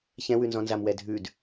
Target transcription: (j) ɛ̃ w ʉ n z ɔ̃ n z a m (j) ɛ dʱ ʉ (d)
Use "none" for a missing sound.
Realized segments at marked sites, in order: ç, w, d

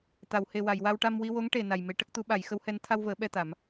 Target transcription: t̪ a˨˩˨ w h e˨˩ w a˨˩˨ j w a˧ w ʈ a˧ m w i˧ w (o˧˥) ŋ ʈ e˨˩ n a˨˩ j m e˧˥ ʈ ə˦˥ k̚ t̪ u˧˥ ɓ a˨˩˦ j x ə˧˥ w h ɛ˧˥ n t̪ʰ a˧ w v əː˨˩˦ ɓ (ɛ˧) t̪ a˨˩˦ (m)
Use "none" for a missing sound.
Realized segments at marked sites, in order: o˧˥, ɛ˧, m

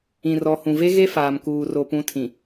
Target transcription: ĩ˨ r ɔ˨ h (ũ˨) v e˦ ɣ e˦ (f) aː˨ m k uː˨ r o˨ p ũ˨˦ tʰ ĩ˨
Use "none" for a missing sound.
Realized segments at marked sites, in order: ũ˨, f

